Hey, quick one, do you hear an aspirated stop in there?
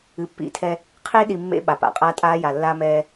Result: yes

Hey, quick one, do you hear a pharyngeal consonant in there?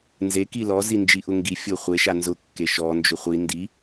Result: no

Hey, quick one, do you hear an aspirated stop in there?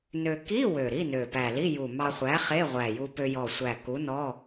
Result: no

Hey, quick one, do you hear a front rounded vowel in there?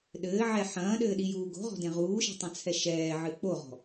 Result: no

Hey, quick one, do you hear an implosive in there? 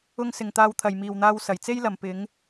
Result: no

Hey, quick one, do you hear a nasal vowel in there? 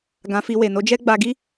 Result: yes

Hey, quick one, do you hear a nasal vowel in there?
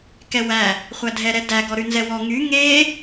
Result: no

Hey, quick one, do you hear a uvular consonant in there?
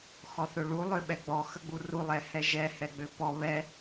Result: no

